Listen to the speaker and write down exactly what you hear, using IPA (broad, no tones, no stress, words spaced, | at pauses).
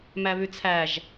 mæβʉt͡sʰæʒ